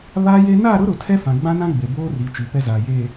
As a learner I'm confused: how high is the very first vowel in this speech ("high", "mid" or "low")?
low